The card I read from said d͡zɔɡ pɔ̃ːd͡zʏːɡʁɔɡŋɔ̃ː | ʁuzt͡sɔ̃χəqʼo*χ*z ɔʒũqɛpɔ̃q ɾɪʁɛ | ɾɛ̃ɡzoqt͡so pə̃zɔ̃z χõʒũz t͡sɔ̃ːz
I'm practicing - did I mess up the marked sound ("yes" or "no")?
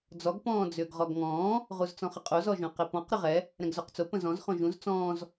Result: yes